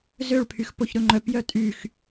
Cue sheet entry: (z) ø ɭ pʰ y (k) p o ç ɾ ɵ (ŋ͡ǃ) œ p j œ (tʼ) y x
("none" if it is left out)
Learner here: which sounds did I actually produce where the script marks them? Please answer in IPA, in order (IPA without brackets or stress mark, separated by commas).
z, x, ŋ͡ǃ, tʼ